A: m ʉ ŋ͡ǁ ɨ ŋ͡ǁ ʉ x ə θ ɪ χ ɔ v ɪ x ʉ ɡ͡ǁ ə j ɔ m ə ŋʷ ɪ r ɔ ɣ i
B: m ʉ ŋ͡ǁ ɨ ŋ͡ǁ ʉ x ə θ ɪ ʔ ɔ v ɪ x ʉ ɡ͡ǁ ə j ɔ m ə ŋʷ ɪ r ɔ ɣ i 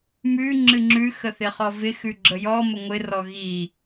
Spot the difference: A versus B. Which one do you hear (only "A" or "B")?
A